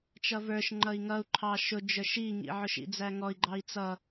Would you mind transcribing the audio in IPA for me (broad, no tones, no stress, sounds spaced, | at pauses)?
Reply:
t͡ʃ ʌ v ə˞ ʃ ŋ͡ǃ ʌ i̯ ŋ ʌ u̯ ǃʰ ɑ ʃ ʊ d͡ʒ ə˞ ʃ i ŋ ḭ ʕ ʊ ʃ ḭ d͡z æ ŋ ɔ i̯ ɡ͡ǃ ɑ i̯ t͡s ʌ